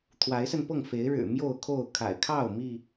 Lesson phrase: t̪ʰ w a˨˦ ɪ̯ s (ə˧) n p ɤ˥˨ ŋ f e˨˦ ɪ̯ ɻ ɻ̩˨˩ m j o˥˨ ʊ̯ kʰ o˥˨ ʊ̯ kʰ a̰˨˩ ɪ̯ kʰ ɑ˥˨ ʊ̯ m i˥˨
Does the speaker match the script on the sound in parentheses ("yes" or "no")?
yes